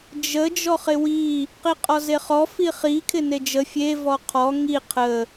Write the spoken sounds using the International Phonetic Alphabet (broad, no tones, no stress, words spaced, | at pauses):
d͡ʒə d͡ʒɔχɪwi | qiqʼɔzeχɔ fiχi kʰɪned͡ʒə fʲe vɔqʰɔ ŋi qʰə